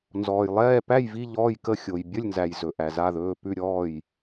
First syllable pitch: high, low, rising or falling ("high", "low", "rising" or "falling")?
low